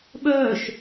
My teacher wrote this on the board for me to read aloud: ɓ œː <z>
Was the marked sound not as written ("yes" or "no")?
yes